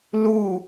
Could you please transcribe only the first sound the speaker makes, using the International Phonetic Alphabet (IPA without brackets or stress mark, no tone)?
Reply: l